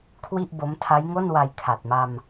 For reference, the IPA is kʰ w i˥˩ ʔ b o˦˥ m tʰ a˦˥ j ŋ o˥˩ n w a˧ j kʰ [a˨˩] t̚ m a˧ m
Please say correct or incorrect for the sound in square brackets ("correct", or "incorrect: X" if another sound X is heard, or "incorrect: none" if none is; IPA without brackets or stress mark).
correct